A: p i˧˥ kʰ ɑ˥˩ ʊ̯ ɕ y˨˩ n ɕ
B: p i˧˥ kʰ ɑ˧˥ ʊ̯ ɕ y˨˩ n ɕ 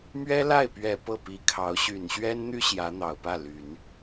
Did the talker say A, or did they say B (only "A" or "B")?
B